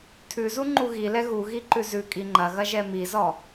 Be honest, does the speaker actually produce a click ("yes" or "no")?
yes